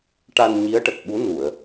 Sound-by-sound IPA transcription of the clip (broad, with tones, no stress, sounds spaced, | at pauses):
ʈ a˧ n ɲ i˧˥ ə̯ ʈ ə˨˩ k̚ ɓ u˧˥ n u˨˩˨ ə̯